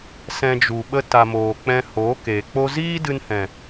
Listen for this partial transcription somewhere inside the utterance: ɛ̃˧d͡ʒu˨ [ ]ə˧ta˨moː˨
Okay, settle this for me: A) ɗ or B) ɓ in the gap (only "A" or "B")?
B